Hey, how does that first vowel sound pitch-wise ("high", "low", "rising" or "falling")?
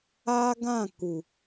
high